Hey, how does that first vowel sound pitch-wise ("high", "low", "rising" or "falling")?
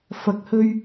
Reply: low